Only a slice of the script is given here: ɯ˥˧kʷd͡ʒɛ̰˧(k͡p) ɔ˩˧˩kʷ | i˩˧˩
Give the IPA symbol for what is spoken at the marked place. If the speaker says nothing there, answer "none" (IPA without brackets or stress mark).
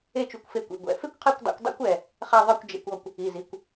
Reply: kʷ